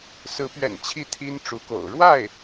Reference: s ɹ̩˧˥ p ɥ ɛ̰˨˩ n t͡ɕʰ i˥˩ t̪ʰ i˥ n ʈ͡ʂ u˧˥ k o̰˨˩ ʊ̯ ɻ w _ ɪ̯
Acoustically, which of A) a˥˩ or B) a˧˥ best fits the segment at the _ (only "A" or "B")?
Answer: A